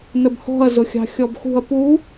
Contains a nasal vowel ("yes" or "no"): no